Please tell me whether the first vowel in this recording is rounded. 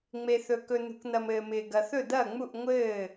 no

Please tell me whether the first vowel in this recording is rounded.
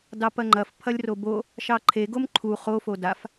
no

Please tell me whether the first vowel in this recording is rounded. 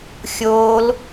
yes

